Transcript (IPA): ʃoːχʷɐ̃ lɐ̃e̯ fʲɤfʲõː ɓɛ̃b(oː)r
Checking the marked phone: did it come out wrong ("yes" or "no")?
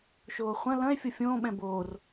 no